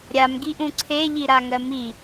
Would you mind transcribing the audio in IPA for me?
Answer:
ɾʲamɡiʔũ ǀʰeʎi ɾaŋɜmi

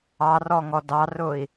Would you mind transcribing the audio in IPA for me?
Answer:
ɑrɔŋɔ dɑrʊi̯

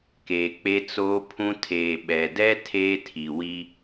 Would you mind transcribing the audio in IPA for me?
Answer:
keː˨k͡pe˦t͡soː˦pʰũ˦ tʰeː˨ɓɛ˨dɛ˦ tʰeː˦tʰi˨wi˦

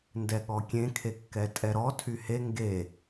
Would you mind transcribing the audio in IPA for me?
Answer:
ndɛɠɔkʲẽ kʰekːɛtʼɛɾɔ tʰyhe ŋɡe

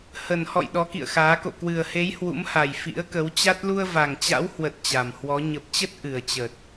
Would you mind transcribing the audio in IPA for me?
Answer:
hə˨˩nhɔ̰˧˨j ɗɔ˨˦kḭ˧˨ə̯xaː˨˦ ko̰˧˨kwɨ˨˩ə̯he˨˦j hwṵ˧˥mha˨˩j fḭ˧˥ə̯kə˨˦w t͡ɕa˦˥t̚ lu˧ə̯va˨˩ŋ t͡ɕa̰˧˥whwə˨˩t̚ t͡ɕa˨˩mhwɔ˨˦ ɲə˨˩p̚t͡ɕə˦˥t̚ ʔɨ˨˩ə̯t͡ɕə˨˩t̚

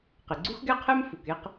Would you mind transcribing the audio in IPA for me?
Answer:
qe˩ɡ͡ǀu˥xɡɛ˥qʰɛ˥m fu˩ke˥q

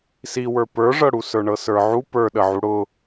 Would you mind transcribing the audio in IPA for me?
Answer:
si wə˞pə˞ʐɤɽu sə˞ɳɤsə˞ʕu pə˞ɗəʕu ɽʊ

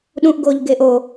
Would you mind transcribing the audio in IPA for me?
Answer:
ɗũʔ ɡoːʎɡeːʔo

